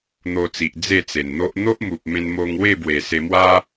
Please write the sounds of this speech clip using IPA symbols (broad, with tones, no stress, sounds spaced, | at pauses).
n̪ o˧ t͡s i˨ ʔ d͡z e˥˧ t͡s e˨˩ n n̪ o˦ ʔ n̪ o˦ ʔ m u˨ p̚ m ẽ˧ n m o˧ ŋ w e˥˧ b w e˨˩ s e˧ m w a˦